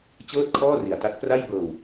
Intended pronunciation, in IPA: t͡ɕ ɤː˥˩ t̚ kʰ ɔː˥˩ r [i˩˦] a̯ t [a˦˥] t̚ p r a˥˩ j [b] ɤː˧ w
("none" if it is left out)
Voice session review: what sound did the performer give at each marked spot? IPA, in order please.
i˩˦, a˦˥, b

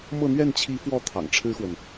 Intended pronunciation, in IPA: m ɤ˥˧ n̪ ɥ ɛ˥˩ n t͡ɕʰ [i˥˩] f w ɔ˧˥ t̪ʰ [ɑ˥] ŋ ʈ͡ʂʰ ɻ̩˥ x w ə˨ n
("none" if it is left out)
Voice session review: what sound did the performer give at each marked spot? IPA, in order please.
i˧˥, ɑ̰˨˩

